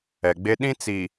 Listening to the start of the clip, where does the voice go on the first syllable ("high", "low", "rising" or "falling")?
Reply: low